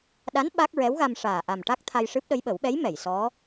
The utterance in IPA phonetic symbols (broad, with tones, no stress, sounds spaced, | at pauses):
ɗ a˧˥ n ɓ a˦˥ k̚ ɹ ɛ˧˥ w ɣ a˧ m ʂ aː˨˩ ʔ a˨˩ m ʈ a˦˥ k̚ t̪ʰ a˧ j ʂ ɨ˦˥ p̚ ɗ ə˧˥ j ɓ ə˨˩˦ w ɓ ɛ˧˥ j m ɛ˨˩˨ j s ɔ˧˥